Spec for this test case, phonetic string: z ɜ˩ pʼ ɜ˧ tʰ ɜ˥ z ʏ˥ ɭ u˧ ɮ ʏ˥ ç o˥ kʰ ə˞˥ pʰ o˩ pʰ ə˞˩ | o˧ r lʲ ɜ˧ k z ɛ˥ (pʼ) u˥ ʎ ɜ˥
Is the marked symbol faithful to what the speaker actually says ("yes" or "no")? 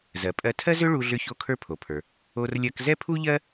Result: no